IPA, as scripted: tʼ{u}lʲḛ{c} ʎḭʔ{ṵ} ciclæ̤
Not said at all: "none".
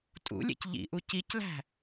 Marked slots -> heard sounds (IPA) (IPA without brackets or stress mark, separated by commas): ṵ, c, u